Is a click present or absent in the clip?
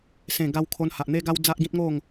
absent